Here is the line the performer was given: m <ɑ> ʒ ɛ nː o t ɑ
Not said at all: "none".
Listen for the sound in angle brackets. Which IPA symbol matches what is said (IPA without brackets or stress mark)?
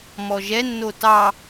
ɔ